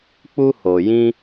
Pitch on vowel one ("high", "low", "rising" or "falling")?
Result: high